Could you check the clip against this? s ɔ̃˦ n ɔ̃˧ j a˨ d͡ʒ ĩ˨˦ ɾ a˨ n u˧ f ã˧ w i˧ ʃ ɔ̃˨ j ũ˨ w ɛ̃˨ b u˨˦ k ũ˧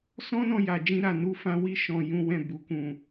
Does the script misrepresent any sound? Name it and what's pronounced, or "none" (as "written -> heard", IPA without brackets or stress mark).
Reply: ĩ˨˦ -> ĩ˧